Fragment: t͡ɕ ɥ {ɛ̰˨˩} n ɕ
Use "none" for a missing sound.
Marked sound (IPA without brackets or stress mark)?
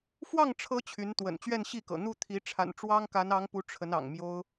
ɛ˥˧